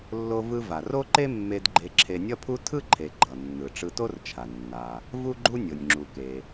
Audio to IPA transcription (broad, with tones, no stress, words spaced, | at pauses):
lːo˧vɯ˧va˩ ro˥ǃe˥mːe˧d ɡ͡ǃe˧ǁʰe˧nʲʌ˥pʰu˥ tʰɯ˥ǃʰe˩ ɡ͡ǃʌ˩nːɯ˩ ʈ͡ʂɯ˧to˥rt͡ʃʰa˩ nːa˩ | vu˥ɡ͡ǃu˥ nʲo˩nʲŋ͡ǁu˩ke˩